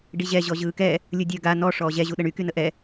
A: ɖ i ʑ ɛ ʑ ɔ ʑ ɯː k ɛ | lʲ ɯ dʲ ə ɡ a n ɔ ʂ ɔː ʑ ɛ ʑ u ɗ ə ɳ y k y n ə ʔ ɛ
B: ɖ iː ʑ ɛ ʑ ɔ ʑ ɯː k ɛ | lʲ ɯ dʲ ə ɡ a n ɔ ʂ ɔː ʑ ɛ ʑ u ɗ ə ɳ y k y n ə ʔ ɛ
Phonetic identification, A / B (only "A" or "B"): A